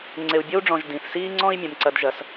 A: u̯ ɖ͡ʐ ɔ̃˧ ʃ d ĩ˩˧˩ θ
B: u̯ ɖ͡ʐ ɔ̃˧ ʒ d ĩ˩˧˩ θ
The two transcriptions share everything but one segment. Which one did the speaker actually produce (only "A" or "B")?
B